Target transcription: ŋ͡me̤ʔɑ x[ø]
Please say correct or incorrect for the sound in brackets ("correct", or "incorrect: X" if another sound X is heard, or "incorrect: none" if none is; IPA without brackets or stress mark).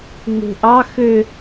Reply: correct